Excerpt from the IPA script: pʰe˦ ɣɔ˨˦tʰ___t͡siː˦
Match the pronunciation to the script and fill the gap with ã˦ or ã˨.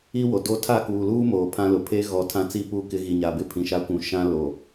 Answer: ã˦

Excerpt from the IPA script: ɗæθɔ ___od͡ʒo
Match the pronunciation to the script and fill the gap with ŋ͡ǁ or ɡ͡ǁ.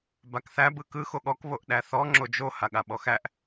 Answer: ŋ͡ǁ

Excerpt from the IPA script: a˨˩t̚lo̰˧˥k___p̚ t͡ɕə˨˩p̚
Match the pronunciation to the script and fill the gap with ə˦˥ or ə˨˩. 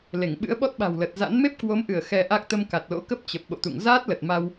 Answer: ə˦˥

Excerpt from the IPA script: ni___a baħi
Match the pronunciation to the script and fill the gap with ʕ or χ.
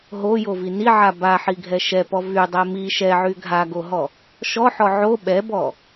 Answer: ʕ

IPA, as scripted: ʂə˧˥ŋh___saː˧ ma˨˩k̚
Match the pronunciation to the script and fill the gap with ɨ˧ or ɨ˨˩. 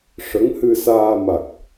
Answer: ɨ˧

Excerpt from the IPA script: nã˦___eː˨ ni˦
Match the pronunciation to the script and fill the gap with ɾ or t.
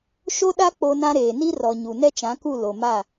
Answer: ɾ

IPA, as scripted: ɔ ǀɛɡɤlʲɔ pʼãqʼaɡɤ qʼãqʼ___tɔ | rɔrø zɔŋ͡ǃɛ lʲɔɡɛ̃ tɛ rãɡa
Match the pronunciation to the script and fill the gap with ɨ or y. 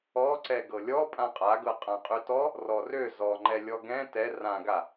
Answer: y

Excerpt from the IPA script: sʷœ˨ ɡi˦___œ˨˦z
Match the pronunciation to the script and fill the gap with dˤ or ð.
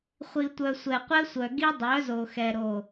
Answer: dˤ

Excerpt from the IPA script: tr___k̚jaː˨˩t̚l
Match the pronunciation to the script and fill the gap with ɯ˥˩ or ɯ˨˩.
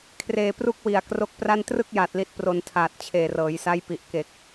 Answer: ɯ˥˩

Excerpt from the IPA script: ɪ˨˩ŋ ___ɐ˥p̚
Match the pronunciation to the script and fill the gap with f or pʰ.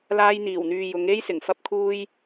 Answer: f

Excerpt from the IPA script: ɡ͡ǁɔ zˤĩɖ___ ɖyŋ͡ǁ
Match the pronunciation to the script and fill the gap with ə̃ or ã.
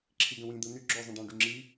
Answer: ã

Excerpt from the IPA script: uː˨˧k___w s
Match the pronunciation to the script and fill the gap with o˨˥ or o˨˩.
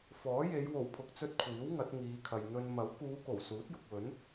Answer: o˨˩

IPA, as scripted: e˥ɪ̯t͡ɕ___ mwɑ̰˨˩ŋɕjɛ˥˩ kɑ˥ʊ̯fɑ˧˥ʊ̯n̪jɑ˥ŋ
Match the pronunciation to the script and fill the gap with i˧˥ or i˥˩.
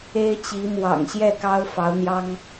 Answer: i˧˥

